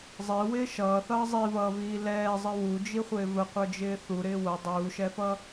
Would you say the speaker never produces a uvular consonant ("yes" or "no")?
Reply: no